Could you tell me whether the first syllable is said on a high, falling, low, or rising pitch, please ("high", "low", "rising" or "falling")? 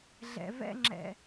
low